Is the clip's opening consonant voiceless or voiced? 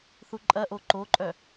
voiceless